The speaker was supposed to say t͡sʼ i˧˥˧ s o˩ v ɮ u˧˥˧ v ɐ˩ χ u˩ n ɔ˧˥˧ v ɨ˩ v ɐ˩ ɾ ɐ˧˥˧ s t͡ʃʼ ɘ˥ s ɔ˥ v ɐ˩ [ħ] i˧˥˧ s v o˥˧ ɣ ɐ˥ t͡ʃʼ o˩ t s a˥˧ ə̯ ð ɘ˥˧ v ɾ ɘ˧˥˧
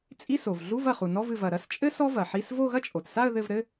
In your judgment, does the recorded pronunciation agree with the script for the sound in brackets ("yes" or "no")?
yes